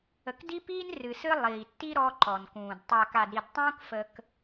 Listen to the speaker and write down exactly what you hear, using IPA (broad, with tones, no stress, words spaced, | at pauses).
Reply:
ə˨kdi˦piː˦n rɨ˨sɨ˦ lˠiː˨tːi˦ ɾɔ˦ǃɔ˨nkũː˨d tˤa˨ka˨dɾi˨dtˤũː˦k fə˦k